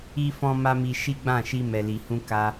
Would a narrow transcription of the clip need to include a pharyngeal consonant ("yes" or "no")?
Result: no